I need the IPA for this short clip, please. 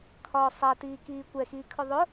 kʰ ɒ sˤ æ t iː k iː kʷ ɛ x iː kʰ ʊ ðˤ ʊ

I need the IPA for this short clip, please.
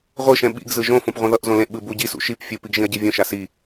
ʁʷ ɯ ʃ ɛ̃ ɓ ḭ ɡ z ɯ ʒ õ f õ p ʁʷ ĩ ð ʌ ʔ z õ l ẽ ʔ ɓ ɯ b u ɟ i s ṵ ʃ i p fʲ u p i ɡ ʒ ĩ ɐ̯ ɟ ɯ vʲ õ ʃ a s i

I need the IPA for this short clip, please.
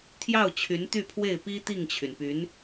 t̪ʰ j ɑ˥˩ ʊ̯ t͡ɕʰ y˧˥ n t̪ y˥˧ pʰ w e˥˩ ɪ̯ p i˥ t̪ i˥˩ ŋ t͡ɕʰ y˩ n p y˧˥ n

